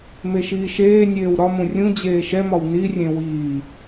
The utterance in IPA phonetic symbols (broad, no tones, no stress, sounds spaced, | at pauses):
m e ʃ iː ʃ eː nʲ eː w ɾ ɒ m ũ rʲ ũ d͡ʑ eː ʃ ɛ m ɒ w n i rʲ ẽ w iː